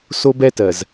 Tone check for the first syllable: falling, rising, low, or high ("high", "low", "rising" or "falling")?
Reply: high